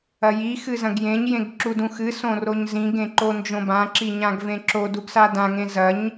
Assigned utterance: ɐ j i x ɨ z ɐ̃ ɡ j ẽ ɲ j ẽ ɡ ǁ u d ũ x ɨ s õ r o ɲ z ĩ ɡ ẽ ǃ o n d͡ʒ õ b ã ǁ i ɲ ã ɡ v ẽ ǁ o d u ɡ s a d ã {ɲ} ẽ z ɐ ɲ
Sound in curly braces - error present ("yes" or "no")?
yes